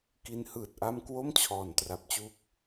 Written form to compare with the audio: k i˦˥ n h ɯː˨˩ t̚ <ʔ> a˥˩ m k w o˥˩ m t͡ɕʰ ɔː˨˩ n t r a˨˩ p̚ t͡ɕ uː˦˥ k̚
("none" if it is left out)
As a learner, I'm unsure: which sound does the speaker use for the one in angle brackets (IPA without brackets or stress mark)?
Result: ʔ